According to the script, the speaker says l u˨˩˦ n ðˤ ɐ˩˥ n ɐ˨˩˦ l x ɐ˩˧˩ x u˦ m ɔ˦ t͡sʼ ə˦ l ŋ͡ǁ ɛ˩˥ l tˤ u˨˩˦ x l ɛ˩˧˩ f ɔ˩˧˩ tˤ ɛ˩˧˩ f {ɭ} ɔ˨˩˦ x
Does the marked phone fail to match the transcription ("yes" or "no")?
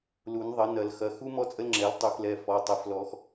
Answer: yes